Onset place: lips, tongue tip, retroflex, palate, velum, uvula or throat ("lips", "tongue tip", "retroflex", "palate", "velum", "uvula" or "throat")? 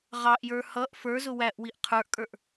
uvula